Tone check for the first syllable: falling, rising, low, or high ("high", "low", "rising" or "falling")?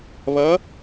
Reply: rising